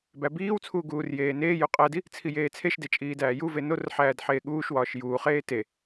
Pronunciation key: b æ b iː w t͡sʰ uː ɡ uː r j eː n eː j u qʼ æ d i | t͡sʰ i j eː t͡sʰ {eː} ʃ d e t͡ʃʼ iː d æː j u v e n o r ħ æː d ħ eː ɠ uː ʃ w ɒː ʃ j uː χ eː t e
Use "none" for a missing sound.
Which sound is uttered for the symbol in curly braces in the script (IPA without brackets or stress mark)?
e